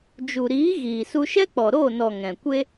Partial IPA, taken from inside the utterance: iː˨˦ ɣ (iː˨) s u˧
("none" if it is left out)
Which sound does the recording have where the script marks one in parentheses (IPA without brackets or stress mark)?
iː˨